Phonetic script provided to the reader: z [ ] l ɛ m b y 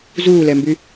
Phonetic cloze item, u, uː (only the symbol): uː